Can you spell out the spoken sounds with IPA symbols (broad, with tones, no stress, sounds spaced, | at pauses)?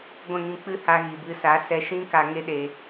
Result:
ɡʷ ɛ̃˦˨ ŋ ĩ˧ k͡p ɨ˦ h a˧ ɣ i˨ b ɨ˧ s a˨˦ s ɛ˧ ʃ ĩ˦ k a˧ ŋ e˦ ɗ e˧